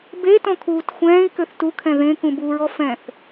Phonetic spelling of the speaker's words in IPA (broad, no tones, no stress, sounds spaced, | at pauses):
b e t ɔ̃ kʰ uː t xʷ ɛ̃ː i̯ k ø θ t u kʰ ɛ̃ ð ẽ k ũ b u ɹ ɔ f ɛ̃ θ